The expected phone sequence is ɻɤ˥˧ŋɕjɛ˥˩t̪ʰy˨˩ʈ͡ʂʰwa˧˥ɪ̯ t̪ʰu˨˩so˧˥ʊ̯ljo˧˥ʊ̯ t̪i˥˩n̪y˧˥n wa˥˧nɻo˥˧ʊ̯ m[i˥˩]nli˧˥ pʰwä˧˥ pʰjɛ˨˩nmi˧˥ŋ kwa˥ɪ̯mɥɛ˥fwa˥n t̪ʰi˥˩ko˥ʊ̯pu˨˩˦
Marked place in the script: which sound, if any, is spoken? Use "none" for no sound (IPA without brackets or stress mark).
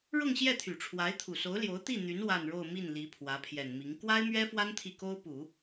i˥˩